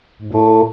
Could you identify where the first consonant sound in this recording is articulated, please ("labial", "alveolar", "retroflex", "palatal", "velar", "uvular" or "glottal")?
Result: labial